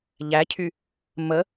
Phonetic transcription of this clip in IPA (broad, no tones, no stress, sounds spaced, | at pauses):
ʎ æ cʰ y | m ə